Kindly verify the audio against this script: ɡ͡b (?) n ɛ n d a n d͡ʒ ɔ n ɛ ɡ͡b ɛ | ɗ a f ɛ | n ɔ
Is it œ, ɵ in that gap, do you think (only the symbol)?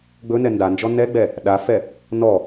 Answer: ɵ